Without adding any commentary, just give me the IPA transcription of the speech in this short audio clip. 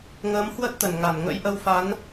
ŋəː˨˦mhwə˦˥t̚t̪ə˧˩n ŋa˧˩nŋə̰˧˥jʔə˧wfa˨˦n

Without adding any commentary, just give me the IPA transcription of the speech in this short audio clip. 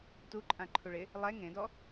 tuǃʼã ǃʰuɭɪ | lˠɛ ŋẽdɔ

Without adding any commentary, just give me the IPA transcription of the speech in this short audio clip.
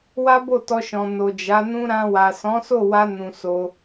wa˦bo˦˨tɔ˧ʃɔ̃˨ no˨d͡ʒa˨˦nũ˦ ɾã˧wa˨ sɔ̃˨˦so˦˨wa˧ nũ˨ so˧

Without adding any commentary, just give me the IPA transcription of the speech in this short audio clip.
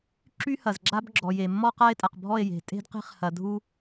ǁy˦ hɐ˨zɡ͡ǁa˦bɡ͡ǁɔ˨je˨ mːɔ˦qa˦e̯tʼa˨qbʱɔ˦˨e̯ je̤˨ tʼe̤˦dqe̤˦χ hɐ˨ dʱu˦

